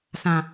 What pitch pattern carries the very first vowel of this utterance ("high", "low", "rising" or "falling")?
low